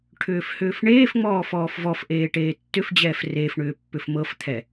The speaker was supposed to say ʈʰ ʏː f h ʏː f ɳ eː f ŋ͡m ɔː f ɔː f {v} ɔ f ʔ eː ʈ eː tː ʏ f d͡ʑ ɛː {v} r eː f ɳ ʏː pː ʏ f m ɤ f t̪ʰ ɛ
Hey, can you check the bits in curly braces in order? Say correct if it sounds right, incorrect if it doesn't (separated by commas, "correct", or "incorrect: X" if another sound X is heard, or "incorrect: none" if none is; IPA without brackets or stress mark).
correct, incorrect: f